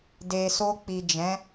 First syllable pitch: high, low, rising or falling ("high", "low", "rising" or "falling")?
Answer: low